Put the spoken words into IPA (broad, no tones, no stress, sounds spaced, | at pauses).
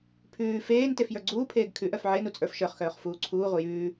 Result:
pʰ ʉː f eː n t e f j ə˞ ɡ͡ǀ uː pʰ eː ɡ kʰ ʉ ʔ œ f ʕ e n u t͡sʼ ə˞ f ʃ ə˞ χ x œː χ f uː ǀʰ uː ʁʷ ɪ j ʉː